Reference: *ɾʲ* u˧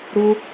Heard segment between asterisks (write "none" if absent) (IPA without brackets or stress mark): ɾ